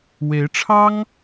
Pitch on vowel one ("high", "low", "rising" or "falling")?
rising